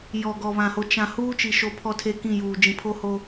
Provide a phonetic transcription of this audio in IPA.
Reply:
j ɔ˨ ɡ ɔ˨ β ã˨ h o˨ t͡ʃ ã˨ h uː˦ t͡ʃ i˨ ʃ o˨ pʰ ɔ˦ tʰ e˦ k ĩ˦˨ j uː˨ d͡ʒ ĩ˨ pʰ o˦ h o˨

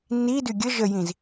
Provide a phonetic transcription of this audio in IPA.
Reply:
n i d y ɡʲ ə ʒ ə j ĩ z

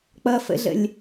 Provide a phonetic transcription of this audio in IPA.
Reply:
k͡p ʌ f ə̰ ɮ ə̰ lʲ

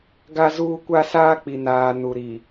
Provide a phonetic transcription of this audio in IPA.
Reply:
ɡ a˦ z uː˦ kʷ a˦ s aː˦ k͡p i˨ n aː˨ n u˨ ɾ i˨

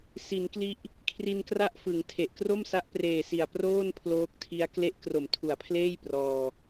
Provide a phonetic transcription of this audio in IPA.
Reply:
s i˩˦ n k l i˦˥ ʔ | kʰ r i˧ n k r a˥˩ ʔ f ɯ˩˦ ŋ tʰ e˨˩ ʔ k r o˥˩ m s a˦˥ ʔ p r eː˨˩ s i˨˩ a̯ p r oː˥˩ n pʰ l oː˦˥ k̚ tʰ i˦˥ a̯ k l e˦˥ ʔ k r o˨˩ m tʰ u˨˩ a̯ pʰ l eː˥˩ j p r ɔː˧

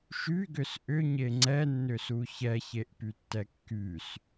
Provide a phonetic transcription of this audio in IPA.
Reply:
ʃ y ɡ ʏ s ʔ ʏ ɲ e ŋ͡ǀ ɛ nː ʏ s u ç ɛ ç e ʔ p y tː ɛ kː y s

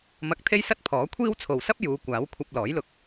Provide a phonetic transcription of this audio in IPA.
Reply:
m ɐ˧ k̚ t̪ʰ e˥ j s ɐ˥ t̚ pʰ ɔː˨˥ kʷʰ iː˥ w t͡sʰ o˨ w s ɐ˥ p̚ j uː˨˧ kʷ aː˨˥ w kʷʰ ɐ˧ p̚ l ɔː˨˥ j l ʊ˧ k̚

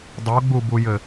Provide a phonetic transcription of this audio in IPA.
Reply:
dˤ o ɡ͡b u b u j ɘ

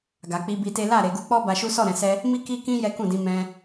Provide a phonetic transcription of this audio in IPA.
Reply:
ɡ a˨ k͡p i˧ b i˧ t e˦ l a˦˨ ɾ e˨ ɡ u˧ k͡p ɔ˦ b a˧ ʃ u˦ s ɔ˦˨ ɾ ɛ̃˨ s ɛ˧ | m i˦ k i˦ k ĩ˦ j ɛ˦ k ũ˦˨ d ĩ˨˦ m ɛ̃˧

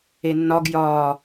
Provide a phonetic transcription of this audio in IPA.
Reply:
e nː ɒ ɡ j ɒː

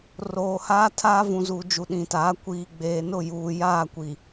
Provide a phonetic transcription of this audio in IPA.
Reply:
r oː˨ h aː˦ tʰ aː˦ v ũ˨ z u˨ d͡ʒ u˨ ɗ ĩ˨ t aː˨˦ kʷ iː˨ ɡ͡b eː˨ n ʊ˦˨ j uː˨ j aː˦˨ kʷ i˨

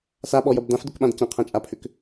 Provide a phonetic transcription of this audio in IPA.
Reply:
s a ɓ ɔ j ɐ b d ã f d ʊ k ɓ ã d c ɐ̃ qʰ ã t͡ʃʼ a pʰ ʏ k

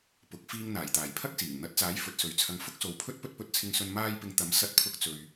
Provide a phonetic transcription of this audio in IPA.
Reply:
p ʊ˨˥ k̚ f iː˧ ŋ n̪ aː˨˩ j t̪ aː˨˩ j pʰ ɐ˥ k̚ s iː˨˩ ŋ n̪ ɐ˨˥ t̚ t͡s aː˨˥ j f ɵ˨˥ t̚ s ɵ˨ ɥ t͡sʰ ɐ˧ ŋ f ʊ˥ k̚ s o˨ w pʰ ɵ˥ t̚ p ɵ˥ t̚ p ɵ˧ t̚ t͡sʰ ɪ˧ ŋ s ɵ˧ n m aː˧ j p ɪ˨˧ ŋ t̪ ɐ˨˥ m s ɐ˧ t̚ pʰ ʊ˧ k̚ t͡s ɵ˨ ɥ

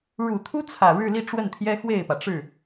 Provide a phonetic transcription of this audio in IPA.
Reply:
ɻ u˨˩ t̪ʰ u˥ t͡sʰ ä˨˩ ɻ ɻ̩˥˧ l i˥˧ ʈ͡ʂ w ə˥˩ n t̪ʰ j ɛ˥ x w e˥˩ ɪ̯ p ä˩ ʈ͡ʂ ɻ̩˥˩

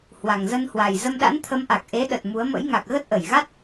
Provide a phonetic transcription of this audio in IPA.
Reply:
h w a˨˩ ŋ z ə˧ n h w a˨˩ j z ə˧ m ɗ a̰˧˥ n t̪ʰ ə˨˦ m ʔ a˨˩ k̚ ʔ e˨˦ ɗ ə˨˩ t̚ m u˨˦ ə̯ m ə̰˧˥ j ŋ a˨˩ k̚ ɣ ə˦˥ t̚ ʔ ə˧˩ j ɣ a˦˥ t̚

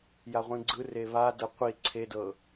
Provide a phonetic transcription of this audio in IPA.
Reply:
j a ʁʷ ĩ ɡ͡ǀ ɯ r e β a d ɤ qʷ i ǀʰ e d ɤ

